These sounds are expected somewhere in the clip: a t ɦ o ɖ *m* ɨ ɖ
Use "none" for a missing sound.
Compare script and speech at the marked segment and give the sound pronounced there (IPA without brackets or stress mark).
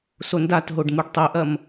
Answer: m